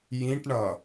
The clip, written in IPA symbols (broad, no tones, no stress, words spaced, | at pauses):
jĩʈɳʌ